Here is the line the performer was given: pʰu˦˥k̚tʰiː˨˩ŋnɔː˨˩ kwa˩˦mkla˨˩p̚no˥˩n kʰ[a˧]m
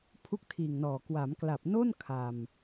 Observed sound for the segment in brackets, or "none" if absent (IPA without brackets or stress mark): a˧